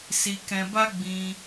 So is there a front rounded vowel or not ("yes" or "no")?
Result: no